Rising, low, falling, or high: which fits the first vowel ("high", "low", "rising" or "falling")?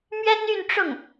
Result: high